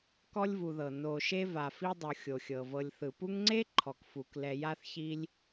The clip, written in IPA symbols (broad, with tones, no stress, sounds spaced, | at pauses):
k ɔ˥ lʲ v u˨ ð ɤ˩ n o˨ ʃ e˦ v a˨ f i˥ dˤ o˨ xʲ o˩ xʲ ɤ˩ v ɤ˨ lʲ θ ɯ˩ p u˦ ŋ ŋ͡ǀ e˥ ǃʰ ɔ˩ k f u˩ k l ɛ˨ j a˦ θ ç i˦ lʲ